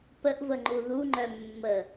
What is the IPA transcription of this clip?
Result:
p ə ʔ v ə ŋ͡ǃ u ð u ŋ͡ǃ œ mː ə

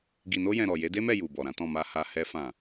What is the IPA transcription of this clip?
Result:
ɡ i˨ n o˧ j ɛ̃˨ ɾ ɔ˨ j e˨˦ d e˦ m ɛ˦˨ j u˨ b ɔ˨ ɾ ã˨˦ t ɔ̃˦˨ m a˨ h a˨ h ɛ˧ f ã˨

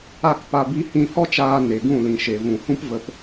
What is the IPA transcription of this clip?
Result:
a˦˨ k p a˧ b i˧ h ĩ˧ h ɔ˦ t͡ʃ aː˧ n e˨ ɡ ũ˦˨ l ĩ˨ ʃ e˨ v ũ˨ h ũ˦ p v ə˧ p

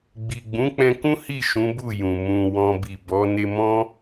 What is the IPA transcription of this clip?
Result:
ɡ͡b i˨ ɡ͡b ũ˨˦ k͡p ɛ̃˧ k ũ˦ h i˦˨ ʃ ũ˨˦ b u˦˨ j ũ˨ m ũ˧ w ɔ̃˦ b i˦˨ b ɔ˨˦ n e˧ m ɔ̃˦

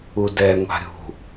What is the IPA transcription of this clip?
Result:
u d ɛ ŋʷ a̤ ɾʲ ṳ

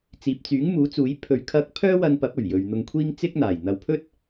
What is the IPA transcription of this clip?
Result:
t͡s iː˨ p̚ t͡s yː˨˥ ŋ m uː˨˥ t͡s uː˨˥ j pʰ ɵ˧ ɥ kʰ ɐ˥ k̚ pʰ œː˥ w ɐ˧ n p ɐ˨˥ p̚ ɵ˨˩ ɥ j ɵ˨ ɥ n̪ ʊ˧ ŋ kʷʰ iː˥ ŋ t͡s ɪ˥ k̚ n̪ aː˨˩ j n̪ ɐ˨˧ w pʰ ɵ˥ t̚

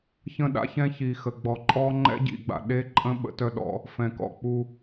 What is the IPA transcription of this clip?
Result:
ç ə̃˦ ɗ a̰˦ ç ɛ̃˦ ç i˨ x ə˨ ɡ͡b ɔ˨ ǃʼ ɔ˦ ŋ͡ǃ ɛ̰˦ ɟ ḭ˨ ɡ͡b a̰˨ ɗ e˦ ǃʼ ə̃˦ ɓ ə̰˦ t œ˦ ɗ ɔ̰˦ | f ɛ̃˨ k ɔ̰˨ k͡p u˦

